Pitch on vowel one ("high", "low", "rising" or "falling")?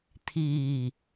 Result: low